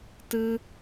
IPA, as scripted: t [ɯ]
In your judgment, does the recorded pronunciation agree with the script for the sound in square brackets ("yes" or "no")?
yes